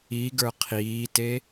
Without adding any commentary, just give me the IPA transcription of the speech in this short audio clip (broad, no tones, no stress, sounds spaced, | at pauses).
i ɡ ə˞ qʰ iː t e